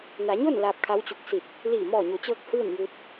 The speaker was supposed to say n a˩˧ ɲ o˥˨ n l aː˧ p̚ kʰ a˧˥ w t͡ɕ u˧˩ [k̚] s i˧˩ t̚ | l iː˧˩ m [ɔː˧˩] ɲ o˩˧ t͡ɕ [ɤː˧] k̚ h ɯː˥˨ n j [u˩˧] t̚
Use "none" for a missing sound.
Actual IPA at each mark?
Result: k̚, ɔː˧˩, ɤː˧, u˧

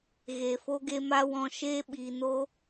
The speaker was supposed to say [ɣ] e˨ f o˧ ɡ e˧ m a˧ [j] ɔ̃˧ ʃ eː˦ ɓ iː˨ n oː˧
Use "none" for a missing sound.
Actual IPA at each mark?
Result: ɣ, w

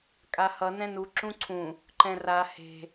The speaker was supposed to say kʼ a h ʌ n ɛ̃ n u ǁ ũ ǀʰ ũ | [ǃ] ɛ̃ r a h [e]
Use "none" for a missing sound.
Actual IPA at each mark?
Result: ǃ, e̤

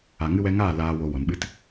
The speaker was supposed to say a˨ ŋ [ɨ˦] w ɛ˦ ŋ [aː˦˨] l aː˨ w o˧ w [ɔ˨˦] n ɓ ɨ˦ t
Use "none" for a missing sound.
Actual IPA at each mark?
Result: ɨ˦, aː˦˨, ɔ˨

